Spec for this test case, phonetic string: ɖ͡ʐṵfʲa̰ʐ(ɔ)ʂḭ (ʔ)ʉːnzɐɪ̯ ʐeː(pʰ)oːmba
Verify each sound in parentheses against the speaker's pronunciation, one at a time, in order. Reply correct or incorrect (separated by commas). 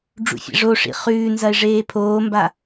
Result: incorrect, incorrect, correct